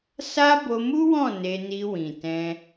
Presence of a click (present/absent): absent